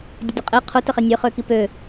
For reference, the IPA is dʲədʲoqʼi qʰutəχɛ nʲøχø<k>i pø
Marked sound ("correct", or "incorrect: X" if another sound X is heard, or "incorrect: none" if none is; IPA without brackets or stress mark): correct